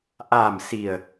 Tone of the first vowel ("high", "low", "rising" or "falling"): low